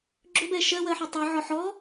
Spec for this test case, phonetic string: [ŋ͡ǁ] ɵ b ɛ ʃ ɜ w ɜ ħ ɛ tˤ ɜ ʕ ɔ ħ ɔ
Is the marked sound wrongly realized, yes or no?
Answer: yes